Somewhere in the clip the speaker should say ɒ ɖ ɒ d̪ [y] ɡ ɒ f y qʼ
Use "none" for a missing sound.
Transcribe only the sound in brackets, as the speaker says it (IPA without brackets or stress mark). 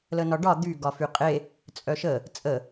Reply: y